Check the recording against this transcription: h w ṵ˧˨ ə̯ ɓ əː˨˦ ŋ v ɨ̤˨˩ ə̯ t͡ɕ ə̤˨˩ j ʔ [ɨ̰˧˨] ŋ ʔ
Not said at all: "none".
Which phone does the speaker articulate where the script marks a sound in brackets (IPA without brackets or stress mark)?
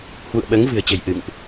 ɨ̰˧˨